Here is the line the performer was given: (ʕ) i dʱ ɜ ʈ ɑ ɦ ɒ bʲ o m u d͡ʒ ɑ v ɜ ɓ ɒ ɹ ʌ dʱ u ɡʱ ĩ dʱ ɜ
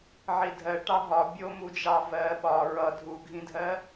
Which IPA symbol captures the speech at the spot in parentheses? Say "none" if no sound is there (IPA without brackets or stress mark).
ʕ